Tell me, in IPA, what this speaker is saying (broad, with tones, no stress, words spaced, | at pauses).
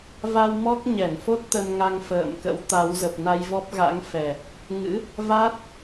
va˧wmɔ˦˥k̚ ɲɛ˧˩nfo˦˥t̚ t̪ə˧nŋa˧ŋ fə̰ː˧˨mkə̰˧˥w t̪a˨˦w zə˨˩p̚na˧jvɔ˦˥p̚ɣa̰˧˥ŋ fɛ˨˩ | ŋɨ̰˧˥ | va˦˥t̚